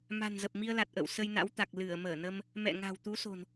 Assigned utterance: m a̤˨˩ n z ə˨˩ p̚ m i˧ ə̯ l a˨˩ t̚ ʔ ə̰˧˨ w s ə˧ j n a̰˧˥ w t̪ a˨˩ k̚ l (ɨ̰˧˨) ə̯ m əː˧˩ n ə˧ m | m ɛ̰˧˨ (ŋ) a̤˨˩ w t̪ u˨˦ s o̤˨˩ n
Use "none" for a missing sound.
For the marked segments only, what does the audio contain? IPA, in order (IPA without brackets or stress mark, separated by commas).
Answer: ɨ˧˩, ŋ